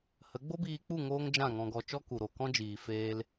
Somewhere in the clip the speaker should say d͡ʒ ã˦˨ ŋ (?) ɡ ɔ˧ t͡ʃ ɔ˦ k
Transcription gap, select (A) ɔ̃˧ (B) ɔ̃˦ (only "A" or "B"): A